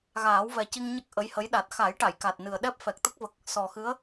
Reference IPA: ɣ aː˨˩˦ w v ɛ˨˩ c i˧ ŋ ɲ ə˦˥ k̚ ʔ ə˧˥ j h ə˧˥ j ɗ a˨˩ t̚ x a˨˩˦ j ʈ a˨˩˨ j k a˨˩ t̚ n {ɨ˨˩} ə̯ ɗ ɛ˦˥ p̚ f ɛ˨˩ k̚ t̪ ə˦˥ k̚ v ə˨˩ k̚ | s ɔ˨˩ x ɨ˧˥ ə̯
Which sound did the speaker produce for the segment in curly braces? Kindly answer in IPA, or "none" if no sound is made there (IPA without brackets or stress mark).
ɨ˨˩